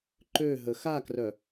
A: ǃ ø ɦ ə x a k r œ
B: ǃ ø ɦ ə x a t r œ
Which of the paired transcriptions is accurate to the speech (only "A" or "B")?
A